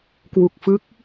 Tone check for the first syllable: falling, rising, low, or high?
low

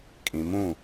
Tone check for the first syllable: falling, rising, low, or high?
low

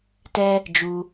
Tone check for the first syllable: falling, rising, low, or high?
high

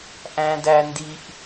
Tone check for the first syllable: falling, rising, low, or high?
high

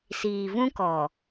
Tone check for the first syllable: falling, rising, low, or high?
low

